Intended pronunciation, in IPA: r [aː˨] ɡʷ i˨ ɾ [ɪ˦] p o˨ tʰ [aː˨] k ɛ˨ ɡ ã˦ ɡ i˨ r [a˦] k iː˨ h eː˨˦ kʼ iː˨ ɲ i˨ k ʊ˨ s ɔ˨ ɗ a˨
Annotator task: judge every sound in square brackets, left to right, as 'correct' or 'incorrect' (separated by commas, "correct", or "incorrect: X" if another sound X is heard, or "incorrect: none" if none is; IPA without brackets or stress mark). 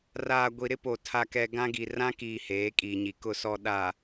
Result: correct, correct, incorrect: a˨, incorrect: ã˦